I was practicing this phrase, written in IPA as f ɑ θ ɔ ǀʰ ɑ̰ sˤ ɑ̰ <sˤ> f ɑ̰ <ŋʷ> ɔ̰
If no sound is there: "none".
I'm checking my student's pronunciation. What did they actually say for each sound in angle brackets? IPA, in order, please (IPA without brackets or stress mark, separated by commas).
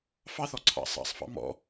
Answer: sˤ, m